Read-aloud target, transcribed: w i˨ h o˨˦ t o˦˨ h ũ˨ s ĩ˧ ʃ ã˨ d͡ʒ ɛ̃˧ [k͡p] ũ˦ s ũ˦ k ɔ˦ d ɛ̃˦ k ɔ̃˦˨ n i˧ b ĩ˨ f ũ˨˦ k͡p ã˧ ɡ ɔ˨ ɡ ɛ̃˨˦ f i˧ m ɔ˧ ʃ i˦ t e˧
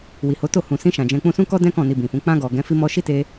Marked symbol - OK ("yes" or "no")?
yes